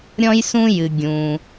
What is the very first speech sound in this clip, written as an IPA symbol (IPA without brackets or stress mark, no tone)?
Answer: ɾʲ